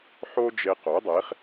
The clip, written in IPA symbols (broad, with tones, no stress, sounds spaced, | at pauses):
ħ o˥ d͡ʒ e˧ q o˩˥ dˤ e˩˥ χ